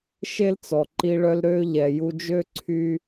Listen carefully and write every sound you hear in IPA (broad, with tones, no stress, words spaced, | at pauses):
ʃe˦lt͡sɔ˨ ǃi˧ ɭœ˧lɾø˧ ʎɛ˨ju˧d͡ʒø˦ ǀʰy˦